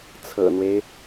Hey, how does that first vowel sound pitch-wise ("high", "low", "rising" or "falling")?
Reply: low